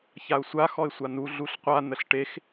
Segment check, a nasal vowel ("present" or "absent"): absent